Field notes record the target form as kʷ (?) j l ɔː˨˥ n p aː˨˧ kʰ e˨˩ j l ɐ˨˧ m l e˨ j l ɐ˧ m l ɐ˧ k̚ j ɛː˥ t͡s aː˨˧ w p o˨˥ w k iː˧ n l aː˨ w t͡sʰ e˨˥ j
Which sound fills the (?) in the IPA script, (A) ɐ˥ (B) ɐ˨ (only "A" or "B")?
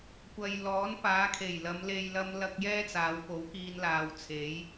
B